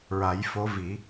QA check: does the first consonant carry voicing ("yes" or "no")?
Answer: yes